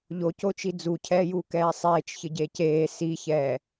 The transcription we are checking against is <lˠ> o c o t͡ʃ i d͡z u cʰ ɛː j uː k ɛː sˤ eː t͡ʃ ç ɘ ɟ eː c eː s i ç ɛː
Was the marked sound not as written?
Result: yes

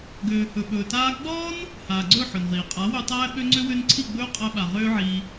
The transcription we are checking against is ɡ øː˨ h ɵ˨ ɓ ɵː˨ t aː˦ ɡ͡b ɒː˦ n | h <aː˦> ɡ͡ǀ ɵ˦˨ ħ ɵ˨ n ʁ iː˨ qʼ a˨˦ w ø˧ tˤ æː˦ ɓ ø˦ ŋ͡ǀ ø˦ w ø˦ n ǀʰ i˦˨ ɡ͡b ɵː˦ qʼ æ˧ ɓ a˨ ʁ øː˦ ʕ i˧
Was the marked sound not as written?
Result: yes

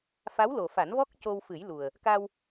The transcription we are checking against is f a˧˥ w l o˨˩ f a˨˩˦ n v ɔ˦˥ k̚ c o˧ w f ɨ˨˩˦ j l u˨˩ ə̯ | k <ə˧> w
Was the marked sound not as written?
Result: yes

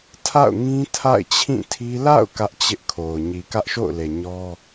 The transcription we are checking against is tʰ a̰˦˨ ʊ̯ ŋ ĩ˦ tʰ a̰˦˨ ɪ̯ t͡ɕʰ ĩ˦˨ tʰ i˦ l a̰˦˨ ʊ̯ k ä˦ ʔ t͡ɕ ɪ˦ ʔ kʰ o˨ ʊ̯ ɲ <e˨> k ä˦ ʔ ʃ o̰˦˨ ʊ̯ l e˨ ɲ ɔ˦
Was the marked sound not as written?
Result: yes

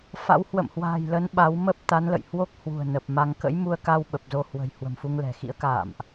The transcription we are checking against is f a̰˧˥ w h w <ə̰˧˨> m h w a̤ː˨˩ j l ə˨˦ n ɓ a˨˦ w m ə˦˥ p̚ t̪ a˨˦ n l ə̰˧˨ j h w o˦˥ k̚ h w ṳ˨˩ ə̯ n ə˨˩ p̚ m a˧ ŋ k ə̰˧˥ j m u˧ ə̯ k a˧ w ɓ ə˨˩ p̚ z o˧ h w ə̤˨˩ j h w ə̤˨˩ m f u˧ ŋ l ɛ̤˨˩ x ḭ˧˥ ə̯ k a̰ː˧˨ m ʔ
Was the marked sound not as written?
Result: no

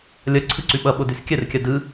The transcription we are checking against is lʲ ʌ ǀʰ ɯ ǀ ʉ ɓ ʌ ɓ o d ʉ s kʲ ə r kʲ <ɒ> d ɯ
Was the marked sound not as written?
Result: yes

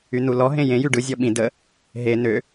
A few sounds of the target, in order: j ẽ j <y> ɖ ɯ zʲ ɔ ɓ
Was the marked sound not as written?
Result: no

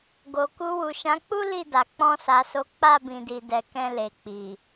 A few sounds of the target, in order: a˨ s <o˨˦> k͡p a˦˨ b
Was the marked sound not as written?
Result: no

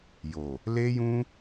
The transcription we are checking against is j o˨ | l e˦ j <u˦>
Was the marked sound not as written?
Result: yes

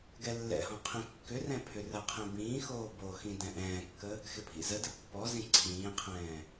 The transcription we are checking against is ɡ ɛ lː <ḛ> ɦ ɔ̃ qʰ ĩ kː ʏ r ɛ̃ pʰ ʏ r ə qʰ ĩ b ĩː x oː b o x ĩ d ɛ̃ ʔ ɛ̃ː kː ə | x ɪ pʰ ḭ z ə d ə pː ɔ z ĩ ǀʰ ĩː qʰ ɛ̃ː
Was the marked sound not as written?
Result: yes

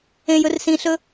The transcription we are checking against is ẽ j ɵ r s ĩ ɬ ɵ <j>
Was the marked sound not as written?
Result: yes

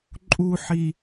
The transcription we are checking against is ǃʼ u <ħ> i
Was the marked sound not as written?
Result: no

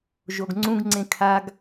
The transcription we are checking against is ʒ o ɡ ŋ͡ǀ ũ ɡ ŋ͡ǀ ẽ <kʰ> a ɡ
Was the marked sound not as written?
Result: no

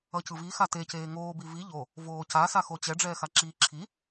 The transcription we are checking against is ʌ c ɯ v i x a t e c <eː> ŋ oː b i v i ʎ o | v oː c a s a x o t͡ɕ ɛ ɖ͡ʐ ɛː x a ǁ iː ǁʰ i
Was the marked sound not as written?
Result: no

